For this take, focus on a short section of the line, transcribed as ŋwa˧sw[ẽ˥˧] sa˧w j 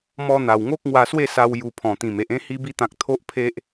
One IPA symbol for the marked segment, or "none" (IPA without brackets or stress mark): e˥˧